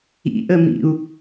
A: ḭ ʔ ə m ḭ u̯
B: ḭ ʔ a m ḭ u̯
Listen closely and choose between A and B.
A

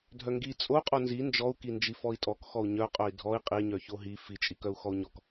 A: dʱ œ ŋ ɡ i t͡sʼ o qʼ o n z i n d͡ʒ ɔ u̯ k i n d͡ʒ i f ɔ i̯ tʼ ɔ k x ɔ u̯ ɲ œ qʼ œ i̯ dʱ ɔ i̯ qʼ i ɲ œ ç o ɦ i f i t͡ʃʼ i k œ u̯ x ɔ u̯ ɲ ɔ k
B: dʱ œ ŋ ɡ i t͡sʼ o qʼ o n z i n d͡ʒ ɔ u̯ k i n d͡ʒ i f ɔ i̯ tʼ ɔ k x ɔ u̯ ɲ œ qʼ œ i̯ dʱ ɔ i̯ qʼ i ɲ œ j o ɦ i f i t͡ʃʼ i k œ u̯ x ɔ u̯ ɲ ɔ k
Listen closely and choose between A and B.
A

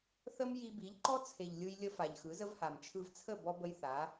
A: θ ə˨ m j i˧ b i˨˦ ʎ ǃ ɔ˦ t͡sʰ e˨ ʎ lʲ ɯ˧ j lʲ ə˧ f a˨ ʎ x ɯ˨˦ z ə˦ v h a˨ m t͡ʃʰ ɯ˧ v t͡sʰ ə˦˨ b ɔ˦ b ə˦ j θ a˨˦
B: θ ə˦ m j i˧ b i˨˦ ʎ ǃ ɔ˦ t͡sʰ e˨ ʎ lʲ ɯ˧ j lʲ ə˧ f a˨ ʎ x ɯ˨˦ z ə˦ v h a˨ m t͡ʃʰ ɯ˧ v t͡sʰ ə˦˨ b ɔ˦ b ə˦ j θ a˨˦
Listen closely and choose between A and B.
B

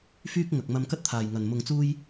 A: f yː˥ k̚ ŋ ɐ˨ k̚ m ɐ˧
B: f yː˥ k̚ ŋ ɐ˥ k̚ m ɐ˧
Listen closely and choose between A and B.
A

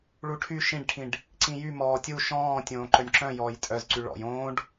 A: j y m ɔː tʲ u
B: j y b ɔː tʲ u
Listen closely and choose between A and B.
A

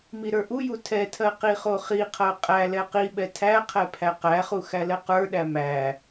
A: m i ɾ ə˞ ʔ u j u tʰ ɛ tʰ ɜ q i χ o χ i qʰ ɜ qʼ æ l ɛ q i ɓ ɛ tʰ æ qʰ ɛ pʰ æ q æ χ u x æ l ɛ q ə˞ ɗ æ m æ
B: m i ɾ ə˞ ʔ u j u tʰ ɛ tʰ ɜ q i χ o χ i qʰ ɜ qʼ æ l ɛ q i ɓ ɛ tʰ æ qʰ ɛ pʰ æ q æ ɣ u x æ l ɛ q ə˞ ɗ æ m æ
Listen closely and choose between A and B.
A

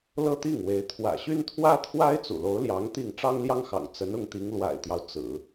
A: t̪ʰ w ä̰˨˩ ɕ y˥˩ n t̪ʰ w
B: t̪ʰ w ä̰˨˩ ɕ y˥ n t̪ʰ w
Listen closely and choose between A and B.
B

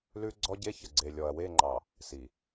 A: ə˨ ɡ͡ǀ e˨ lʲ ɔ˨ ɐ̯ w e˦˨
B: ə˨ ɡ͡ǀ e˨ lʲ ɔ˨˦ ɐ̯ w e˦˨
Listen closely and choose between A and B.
A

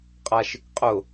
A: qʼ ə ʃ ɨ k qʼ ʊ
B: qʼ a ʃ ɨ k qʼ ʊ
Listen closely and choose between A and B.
B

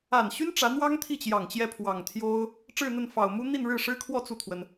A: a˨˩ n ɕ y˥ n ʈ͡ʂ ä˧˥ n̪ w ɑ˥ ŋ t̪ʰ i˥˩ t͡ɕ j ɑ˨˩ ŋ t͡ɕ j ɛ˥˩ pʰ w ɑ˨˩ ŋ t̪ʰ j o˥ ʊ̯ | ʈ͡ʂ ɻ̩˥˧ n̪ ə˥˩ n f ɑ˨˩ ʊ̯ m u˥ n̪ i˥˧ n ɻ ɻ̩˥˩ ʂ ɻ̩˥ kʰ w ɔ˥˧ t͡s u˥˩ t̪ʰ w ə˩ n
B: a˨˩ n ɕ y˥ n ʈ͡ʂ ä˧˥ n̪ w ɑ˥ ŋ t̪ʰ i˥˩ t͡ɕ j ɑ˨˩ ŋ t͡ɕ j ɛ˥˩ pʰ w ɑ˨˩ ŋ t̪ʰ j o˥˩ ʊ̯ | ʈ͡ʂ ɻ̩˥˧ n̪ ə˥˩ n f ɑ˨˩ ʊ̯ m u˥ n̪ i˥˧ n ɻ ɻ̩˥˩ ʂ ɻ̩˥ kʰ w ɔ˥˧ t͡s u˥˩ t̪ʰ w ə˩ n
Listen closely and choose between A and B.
A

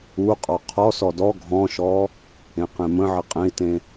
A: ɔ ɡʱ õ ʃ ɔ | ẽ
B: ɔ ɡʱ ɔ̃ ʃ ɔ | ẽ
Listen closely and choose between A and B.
B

